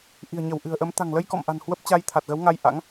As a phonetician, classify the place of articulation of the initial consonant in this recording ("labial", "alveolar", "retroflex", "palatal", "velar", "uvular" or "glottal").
glottal